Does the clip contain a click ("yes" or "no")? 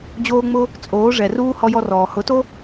no